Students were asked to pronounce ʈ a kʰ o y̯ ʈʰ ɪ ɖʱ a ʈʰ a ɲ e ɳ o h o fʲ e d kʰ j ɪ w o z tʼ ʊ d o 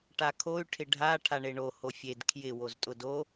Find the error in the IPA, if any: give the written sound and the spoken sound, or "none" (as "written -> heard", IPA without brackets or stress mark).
ɲ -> ɳ